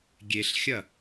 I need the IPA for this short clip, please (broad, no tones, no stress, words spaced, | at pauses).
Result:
ɡʲeɬxʲɐ